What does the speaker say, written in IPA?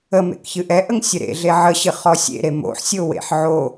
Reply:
ə m ḛ k ç ɨ ʔ ɛ ʔ ə ŋ sʲ ə ɾ ḛ ɮ e ʕ ə ɕ ɨ χ ɔ sʲ ḛ ɾ e m o̰ ħ sʲ o w ḛ ħ ʕ o

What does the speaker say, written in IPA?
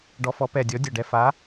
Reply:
ɖ ɔ˨˥ f ɔ˨˥ p ɛ˧˩ dʲ ɔ˨˥ dʲ ɒ˧˩ ɖ ɛ˧˩ f a˨˥

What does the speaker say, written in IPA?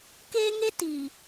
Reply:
k eː˦ ŋ e˦ t i˨

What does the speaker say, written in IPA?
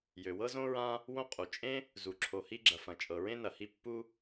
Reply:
j ø˩ w ɤ˥ z õ˥ ɹ ã˥ | w õ˥ qʼ u˩ t͡ʃʼ ẽ˥ | z u˩ ǁʰ o˩ h i˥ ɡ͡ǁ ɐ˩ f ɐ̃˩ t͡ʃʼ ɤ˩ ɹ ẽ˥ n ɐ˩ h i˥ pː u˥

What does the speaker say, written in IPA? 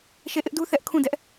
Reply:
ʃ e˦˨ ʔ ɪ˦ ʔ d u˦ θ ɛ˦ ʔ kʰ ũ˦˨ d ɛ˦ ʔ

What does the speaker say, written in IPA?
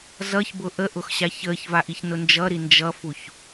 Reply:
z ʌ ç b ʊ ʔ ə ʔ ʊ x ɕ a ç əː ç v a ʔ i ç n ʊ n d͡ʒ ʌ ɾ i n d͡ʒ ʌ f u ç

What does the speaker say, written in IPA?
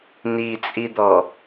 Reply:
n i t͡sʼ i d̪ ɔ

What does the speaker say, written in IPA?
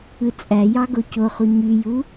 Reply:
ɯ t͡sʼ æ j ɑ ɡ o c o χ u ɲ y j u

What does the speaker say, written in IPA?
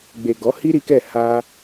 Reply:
ɡ͡b e˨ ɡ ɔ˨˦ h i˦ ɾ i˦ k ɛ˦˨ h a˧

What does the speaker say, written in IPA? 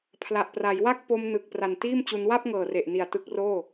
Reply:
pʰ l a˨˩ ʔ p r a˩˦ j w a˥˩ k̚ p o˧ m n ɯ˨˩ k̚ p r a˨˩ n t iː˥˩ m t͡ɕ u˧ n w a˥˩ p̚ ŋ ɤː˨˩ r e˨˩ ʔ n i˨˩ a̯ t ɯ˦˥ k̚ r oː˥˩

